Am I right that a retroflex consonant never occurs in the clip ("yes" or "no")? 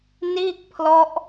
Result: yes